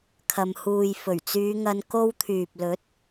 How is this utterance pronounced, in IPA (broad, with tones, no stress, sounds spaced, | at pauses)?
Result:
kʰ ɐ˨ m h uː˨ j f ɵ˨˩ ɥ t͡s yː˨˧ ŋ ɐ˧ n k o˧ w t̪ʰ yː˨ p̚ l ɵ˨˥ t̚